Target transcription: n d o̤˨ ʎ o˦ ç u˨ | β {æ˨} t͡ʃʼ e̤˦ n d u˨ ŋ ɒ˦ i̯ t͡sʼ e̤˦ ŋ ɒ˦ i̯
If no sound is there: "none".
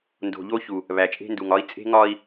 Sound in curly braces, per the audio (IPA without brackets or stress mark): æ˨